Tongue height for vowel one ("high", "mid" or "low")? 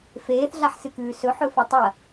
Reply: mid